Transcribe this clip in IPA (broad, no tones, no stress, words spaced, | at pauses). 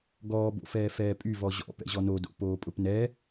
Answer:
ɡɔːbo̰fɛː fɛːpʼyvɔ ʑɔ̰ pɛ̰ʑɔnodo̰ poːpʼʊpnɛ